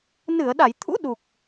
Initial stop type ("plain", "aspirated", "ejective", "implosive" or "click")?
implosive